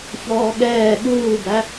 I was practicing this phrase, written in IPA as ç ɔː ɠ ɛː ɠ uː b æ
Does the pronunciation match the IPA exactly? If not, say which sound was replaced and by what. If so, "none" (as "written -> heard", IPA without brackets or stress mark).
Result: none